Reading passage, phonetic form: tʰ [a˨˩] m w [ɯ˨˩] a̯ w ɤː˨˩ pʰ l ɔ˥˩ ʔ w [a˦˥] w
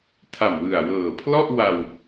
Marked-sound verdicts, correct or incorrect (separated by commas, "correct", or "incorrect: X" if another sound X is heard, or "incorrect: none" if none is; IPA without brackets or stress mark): correct, correct, incorrect: a˧